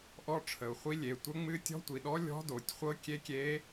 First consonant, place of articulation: glottal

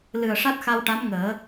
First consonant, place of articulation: alveolar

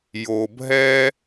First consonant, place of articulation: palatal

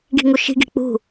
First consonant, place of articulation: velar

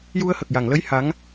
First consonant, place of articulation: palatal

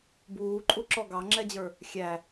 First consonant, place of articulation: labial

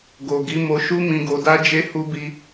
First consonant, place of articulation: velar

